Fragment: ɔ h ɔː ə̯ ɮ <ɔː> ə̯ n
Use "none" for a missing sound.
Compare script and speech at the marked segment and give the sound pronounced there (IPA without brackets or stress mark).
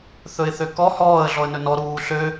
ɔ